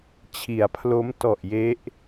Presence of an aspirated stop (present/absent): present